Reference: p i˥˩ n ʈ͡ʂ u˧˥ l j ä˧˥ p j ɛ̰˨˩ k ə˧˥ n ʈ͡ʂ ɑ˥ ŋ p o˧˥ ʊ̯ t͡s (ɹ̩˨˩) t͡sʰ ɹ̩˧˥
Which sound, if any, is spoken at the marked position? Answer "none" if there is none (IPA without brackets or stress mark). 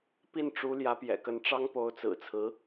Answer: ɹ̩˨˩